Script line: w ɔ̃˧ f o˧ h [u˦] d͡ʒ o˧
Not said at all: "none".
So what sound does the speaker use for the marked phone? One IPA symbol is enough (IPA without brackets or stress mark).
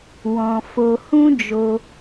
ũ˦